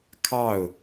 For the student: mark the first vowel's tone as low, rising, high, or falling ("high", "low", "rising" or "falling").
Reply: falling